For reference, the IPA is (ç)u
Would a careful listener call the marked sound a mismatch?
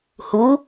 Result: yes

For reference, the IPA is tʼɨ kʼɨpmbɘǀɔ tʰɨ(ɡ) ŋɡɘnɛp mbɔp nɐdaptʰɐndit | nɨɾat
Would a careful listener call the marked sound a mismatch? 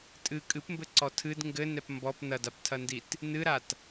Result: yes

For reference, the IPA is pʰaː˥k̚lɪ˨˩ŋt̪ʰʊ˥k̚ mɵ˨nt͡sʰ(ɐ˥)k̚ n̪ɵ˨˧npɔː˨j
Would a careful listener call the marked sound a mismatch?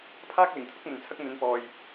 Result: no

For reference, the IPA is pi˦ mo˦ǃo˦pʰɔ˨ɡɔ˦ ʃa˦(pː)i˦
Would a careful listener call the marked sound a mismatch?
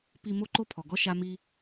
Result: yes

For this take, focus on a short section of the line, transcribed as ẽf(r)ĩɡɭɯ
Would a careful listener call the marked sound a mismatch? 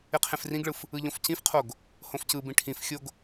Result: no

